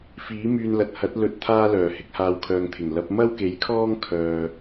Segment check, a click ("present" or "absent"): absent